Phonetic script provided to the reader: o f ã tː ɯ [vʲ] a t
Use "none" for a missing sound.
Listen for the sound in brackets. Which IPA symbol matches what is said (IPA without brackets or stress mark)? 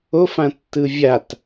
vʲ